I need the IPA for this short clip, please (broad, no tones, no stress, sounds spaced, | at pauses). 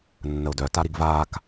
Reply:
nː ə ʊ̯ d œ t a ɾ i ɡ v aː k